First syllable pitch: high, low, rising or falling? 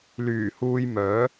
low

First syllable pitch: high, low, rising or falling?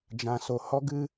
low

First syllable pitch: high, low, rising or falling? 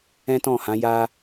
high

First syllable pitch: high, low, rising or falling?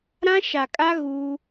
high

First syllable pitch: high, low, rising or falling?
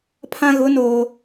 high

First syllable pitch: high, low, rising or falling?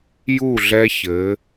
falling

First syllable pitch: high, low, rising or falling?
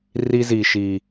high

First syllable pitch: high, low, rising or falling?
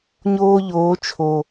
high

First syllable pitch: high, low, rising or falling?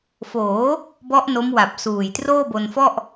rising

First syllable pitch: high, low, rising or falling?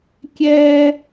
high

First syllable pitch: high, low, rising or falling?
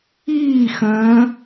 falling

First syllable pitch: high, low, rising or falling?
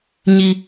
high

